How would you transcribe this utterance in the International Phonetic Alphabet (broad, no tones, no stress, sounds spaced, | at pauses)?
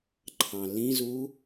ǃʰ ɑ̃ l ĩ z u